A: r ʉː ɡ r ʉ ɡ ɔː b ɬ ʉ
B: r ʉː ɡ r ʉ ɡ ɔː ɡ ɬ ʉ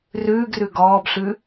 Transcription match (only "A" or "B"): A